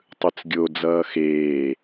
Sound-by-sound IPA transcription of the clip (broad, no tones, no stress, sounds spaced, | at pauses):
tˤ ɯ t͡s ɡʲ o d͡z ʌː x eː